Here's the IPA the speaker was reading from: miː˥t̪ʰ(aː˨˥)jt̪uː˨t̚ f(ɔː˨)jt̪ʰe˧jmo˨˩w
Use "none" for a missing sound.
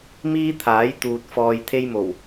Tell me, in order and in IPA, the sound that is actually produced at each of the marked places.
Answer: aː˨˥, ɔː˨

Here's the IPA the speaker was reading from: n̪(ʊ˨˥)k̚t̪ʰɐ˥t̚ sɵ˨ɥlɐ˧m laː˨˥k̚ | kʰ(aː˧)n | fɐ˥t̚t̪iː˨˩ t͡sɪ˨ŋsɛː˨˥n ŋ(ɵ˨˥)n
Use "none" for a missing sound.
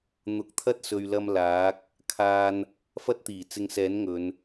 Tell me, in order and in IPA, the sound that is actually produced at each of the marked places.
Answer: ʊ˨˥, aː˧, ɵ˨˧

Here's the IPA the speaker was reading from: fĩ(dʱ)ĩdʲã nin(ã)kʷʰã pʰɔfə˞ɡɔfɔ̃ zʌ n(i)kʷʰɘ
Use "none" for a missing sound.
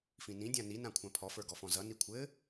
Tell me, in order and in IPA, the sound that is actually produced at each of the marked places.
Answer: n, ã, i

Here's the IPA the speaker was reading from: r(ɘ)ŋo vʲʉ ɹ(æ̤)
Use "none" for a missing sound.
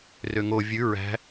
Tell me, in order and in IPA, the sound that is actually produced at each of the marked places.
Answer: ø, æ̤

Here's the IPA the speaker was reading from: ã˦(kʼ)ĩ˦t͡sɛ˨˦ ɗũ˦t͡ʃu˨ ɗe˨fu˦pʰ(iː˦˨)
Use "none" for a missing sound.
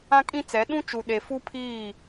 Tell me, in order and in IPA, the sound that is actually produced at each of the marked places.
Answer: kʼ, iː˦˨

